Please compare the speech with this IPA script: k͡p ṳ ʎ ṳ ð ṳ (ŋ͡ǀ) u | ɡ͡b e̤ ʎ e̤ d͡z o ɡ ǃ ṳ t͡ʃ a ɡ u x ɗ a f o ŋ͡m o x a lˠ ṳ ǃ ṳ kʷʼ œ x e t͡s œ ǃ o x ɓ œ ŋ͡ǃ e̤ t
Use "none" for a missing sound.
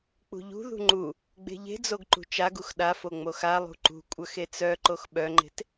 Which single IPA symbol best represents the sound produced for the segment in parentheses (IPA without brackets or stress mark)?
ŋ͡ǃ